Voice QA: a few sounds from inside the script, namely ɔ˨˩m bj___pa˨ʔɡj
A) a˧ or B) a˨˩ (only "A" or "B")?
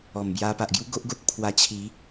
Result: A